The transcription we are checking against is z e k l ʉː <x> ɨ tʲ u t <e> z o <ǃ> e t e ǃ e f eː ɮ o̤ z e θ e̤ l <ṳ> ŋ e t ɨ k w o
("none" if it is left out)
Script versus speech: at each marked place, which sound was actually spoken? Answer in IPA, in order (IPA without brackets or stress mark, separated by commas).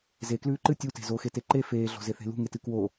ǃ, e̤, x, ṳ